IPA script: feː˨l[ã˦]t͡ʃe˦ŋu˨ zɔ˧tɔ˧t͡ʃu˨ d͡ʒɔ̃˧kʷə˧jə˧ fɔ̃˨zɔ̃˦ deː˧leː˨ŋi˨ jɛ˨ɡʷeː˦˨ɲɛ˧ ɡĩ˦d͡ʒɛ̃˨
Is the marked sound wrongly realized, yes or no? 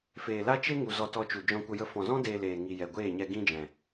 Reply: yes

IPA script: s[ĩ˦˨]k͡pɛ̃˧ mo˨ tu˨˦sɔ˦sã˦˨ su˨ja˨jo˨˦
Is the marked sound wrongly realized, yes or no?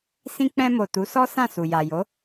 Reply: yes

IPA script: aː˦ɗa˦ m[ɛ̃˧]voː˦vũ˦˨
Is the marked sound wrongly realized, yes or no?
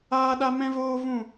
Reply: yes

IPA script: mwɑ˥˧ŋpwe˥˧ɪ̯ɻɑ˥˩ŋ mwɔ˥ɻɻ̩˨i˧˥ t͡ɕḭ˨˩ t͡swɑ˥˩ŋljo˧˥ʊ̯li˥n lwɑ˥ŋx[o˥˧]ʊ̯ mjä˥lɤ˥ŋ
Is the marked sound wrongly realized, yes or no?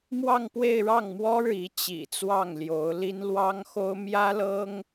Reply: yes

